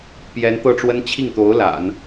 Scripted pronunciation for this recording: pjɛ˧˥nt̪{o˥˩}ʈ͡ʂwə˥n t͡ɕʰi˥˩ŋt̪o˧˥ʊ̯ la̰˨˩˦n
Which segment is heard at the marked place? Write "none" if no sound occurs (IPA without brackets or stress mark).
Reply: ɤ˥˩